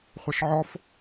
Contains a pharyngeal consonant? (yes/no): yes